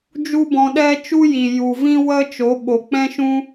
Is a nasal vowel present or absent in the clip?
present